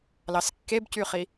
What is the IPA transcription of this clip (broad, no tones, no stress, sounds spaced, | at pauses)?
l ɑ s kː e b c y χ i